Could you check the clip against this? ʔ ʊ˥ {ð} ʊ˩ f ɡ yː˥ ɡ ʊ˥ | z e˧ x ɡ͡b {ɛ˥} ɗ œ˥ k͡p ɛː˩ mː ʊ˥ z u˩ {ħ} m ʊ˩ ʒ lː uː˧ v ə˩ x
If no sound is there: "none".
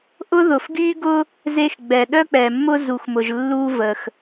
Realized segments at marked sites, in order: ð, ɛ˩, x

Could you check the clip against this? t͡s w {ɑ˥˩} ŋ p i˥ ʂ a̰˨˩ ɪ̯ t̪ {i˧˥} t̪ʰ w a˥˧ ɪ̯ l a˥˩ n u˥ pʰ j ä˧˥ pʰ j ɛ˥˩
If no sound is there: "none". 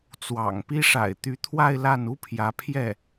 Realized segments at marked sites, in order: ɑ̰˨˩, y˧˥

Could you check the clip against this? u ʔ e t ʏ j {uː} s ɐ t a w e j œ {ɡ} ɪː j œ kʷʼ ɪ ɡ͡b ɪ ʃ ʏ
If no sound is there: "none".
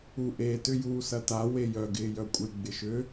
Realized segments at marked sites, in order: uː, ɡ

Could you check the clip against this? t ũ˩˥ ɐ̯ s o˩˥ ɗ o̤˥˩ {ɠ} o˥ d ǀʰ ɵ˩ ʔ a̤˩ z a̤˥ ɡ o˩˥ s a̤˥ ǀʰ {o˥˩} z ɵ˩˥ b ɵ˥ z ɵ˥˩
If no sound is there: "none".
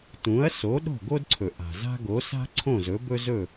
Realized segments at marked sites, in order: ɡ, õ˥˩

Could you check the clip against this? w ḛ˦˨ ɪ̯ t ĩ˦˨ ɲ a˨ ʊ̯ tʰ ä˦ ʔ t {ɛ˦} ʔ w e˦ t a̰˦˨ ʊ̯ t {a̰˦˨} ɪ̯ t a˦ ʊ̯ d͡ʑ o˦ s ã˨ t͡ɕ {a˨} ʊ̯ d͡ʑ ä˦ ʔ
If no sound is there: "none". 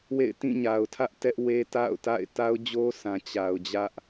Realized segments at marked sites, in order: ɛ˦, a̰˦˨, a˨

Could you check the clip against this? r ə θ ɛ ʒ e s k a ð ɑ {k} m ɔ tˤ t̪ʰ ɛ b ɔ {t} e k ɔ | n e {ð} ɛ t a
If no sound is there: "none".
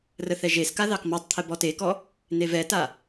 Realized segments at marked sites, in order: k, t, v

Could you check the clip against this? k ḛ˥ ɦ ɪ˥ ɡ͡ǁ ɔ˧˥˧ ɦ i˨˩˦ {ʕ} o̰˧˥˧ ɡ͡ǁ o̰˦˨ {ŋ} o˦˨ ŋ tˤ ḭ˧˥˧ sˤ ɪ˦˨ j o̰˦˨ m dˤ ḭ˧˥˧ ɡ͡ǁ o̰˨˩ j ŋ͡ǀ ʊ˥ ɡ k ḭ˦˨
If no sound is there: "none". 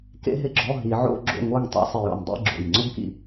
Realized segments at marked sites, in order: ʕ, ŋ

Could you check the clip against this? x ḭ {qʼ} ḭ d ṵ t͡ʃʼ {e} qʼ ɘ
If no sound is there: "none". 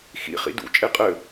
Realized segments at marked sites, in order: χ, e

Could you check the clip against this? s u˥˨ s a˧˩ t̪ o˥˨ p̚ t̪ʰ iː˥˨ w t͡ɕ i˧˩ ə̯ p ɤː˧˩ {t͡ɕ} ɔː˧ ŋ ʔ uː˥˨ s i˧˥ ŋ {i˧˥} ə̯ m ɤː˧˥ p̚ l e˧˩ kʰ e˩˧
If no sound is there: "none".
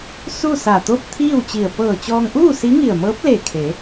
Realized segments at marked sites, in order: t͡ɕ, i˧˩

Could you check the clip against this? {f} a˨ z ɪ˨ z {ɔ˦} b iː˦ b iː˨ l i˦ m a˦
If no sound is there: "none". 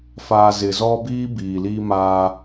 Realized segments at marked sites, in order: f, ɔ˦

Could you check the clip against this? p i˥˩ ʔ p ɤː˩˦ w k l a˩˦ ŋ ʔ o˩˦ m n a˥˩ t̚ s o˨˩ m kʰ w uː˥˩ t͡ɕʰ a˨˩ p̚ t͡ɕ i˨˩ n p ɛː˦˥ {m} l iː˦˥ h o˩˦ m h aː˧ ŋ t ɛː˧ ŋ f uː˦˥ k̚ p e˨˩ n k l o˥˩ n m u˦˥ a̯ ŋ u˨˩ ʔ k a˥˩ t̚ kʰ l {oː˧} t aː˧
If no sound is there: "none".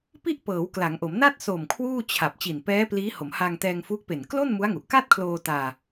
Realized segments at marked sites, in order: p, oː˧

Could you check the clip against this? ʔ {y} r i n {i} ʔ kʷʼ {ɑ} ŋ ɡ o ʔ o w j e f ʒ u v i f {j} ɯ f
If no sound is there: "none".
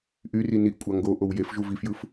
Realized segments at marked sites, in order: y, i, ɑ, j

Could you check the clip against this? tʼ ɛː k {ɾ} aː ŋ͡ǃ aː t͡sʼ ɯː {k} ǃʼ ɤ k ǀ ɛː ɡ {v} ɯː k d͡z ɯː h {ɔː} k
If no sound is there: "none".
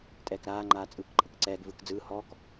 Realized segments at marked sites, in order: ɾ, k, v, ɔː

